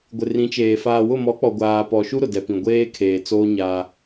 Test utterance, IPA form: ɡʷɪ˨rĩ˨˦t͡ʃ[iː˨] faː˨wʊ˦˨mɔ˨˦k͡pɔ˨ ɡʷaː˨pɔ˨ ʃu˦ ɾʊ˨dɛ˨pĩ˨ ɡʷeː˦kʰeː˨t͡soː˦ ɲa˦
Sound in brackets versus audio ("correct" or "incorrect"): incorrect